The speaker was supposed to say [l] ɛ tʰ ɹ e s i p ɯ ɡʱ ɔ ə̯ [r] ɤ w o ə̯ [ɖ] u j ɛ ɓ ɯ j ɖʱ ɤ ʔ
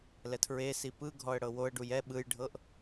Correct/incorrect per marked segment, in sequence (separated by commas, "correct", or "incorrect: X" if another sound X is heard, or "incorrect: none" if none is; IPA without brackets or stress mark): correct, incorrect: ɽ, correct